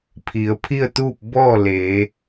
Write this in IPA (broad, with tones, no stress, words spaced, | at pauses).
pʰi˩˧ə̯pʰi˥˨ə̯t̪uː˥˨p̚ bɔː˥˨leː˩˧